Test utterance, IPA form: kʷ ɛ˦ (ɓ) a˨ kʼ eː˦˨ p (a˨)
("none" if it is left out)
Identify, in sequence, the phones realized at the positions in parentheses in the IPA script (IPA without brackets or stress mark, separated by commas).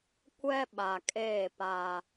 ɓ, a˦